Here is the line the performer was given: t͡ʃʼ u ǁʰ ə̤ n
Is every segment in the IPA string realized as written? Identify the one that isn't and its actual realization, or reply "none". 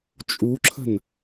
none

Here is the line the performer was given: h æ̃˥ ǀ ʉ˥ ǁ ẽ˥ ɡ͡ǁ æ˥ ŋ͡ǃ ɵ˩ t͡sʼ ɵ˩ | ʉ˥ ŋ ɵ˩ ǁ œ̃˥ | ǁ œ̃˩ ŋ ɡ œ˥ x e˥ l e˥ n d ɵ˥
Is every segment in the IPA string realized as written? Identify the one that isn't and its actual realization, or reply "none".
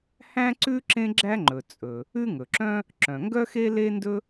none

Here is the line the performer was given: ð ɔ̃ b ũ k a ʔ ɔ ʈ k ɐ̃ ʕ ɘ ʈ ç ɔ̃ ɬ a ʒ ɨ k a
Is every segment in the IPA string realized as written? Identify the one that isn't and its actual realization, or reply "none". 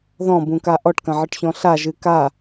none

